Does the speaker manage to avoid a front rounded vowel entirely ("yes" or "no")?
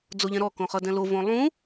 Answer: yes